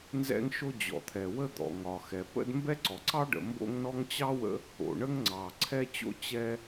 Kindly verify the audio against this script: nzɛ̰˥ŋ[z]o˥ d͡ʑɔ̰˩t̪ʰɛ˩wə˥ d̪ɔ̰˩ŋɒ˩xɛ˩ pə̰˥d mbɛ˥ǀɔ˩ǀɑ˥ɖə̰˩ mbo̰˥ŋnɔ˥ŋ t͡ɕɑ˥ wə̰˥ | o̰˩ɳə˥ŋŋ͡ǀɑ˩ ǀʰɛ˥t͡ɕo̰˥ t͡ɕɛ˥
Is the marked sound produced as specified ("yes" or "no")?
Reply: no